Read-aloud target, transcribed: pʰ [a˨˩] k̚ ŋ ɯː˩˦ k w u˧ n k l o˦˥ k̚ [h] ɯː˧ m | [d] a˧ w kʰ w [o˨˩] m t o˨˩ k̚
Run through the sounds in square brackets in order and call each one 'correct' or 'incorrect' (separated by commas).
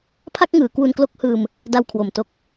incorrect, correct, correct, correct